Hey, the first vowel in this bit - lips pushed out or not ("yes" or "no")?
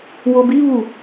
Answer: yes